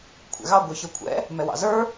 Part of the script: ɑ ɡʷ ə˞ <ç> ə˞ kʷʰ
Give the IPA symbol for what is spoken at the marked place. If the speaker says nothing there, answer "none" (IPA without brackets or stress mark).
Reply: ç